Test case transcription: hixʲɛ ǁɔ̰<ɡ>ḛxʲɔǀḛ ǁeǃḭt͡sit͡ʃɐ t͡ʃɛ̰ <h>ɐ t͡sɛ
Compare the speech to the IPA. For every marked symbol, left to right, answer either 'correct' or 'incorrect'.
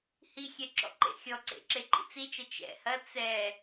incorrect, correct

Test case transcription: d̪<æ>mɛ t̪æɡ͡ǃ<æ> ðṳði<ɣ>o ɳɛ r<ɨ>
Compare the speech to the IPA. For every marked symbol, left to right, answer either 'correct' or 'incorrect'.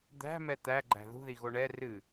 incorrect, incorrect, correct, correct

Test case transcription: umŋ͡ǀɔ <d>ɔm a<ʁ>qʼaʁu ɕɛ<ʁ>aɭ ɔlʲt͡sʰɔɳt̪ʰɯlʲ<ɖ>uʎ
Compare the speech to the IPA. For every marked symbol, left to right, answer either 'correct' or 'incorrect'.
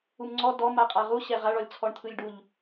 correct, incorrect, correct, correct

